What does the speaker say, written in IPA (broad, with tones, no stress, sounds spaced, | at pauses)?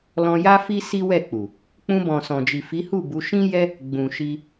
l ɔ̃˧ j a˦ f i˦ s i˦ w ɛ˦˨ k͡p u˨ | k͡p ũ˧ b ɔ̃˨ s ɔ̃˨ d͡ʒ i˨ f i˨˦ h u˦˨ b u˨˦ ʃ ĩ˦ j ɛ˦ | ɡ͡b ũ˨ ʃ i˧